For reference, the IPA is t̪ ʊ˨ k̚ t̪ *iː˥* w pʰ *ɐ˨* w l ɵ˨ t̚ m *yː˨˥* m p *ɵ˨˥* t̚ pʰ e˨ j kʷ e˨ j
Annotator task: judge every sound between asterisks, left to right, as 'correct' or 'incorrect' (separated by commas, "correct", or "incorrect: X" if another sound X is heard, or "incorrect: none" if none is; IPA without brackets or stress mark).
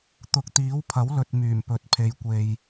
incorrect: iː˨˥, incorrect: ɐ˨˥, incorrect: yː˨˩, incorrect: ɵ˨